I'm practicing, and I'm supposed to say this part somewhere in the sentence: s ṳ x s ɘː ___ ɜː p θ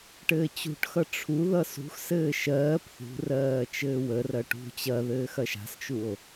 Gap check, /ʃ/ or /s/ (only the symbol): ʃ